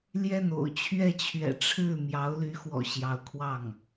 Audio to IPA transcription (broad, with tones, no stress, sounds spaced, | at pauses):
l j ɛ˥˩ n o̰˨˩ ʊ̯ t͡ɕʰ ɥ ɛ˥˩ t͡ɕʰ ɥ ɛ̰˨˩ ʈ͡ʂʰ ɻ̩˥˩ m j ɑ˧˥ ʊ̯ l y˧˥ x w ɔ̰˨˩ ɕ j ɑ˧˥ ʊ̯ kʰ w ɑ˥˩ ŋ